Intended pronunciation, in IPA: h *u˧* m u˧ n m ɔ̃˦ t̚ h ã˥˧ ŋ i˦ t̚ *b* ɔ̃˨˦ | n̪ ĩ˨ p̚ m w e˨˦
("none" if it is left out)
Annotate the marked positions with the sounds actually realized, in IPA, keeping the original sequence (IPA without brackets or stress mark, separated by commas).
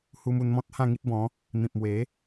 u˧, b